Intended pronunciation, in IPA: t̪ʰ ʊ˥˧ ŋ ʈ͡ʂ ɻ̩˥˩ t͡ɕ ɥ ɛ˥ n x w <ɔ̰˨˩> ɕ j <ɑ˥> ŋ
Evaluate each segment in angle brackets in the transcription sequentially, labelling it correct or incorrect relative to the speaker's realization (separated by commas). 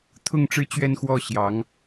incorrect, incorrect